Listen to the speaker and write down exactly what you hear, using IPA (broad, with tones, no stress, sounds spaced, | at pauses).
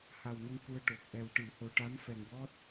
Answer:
h a˨˩ w n ə˧ ŋ k u˧ ə̯ ʈ o˨˩ k̚ ʔ ɛ˨˩ w ʈ ɨ˨˩˨ h o˨˩ ʈ a˧˥ m f ɛ˨˩ ŋ w ɔ˦˥ t̚